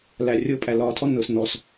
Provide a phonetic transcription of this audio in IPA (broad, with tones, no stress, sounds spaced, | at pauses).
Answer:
l æ˨ rʲ ʊː˦ pʼ æ˨ l ɒː˨ tʰ ɔ˦ n ʊː˨ s n ɔ˨˦ s